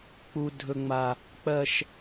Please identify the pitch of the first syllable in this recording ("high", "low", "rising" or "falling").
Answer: high